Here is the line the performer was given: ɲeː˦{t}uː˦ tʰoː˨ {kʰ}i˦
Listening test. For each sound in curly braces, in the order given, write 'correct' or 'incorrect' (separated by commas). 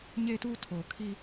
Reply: correct, correct